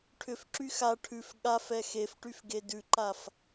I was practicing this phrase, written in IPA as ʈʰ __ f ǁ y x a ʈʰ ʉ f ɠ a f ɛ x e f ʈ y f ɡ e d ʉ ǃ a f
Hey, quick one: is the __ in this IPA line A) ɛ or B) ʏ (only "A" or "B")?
B